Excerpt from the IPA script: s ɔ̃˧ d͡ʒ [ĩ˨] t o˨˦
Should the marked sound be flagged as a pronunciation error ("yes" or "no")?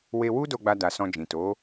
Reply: no